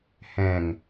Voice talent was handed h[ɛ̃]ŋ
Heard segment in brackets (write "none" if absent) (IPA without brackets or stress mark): ɛ̃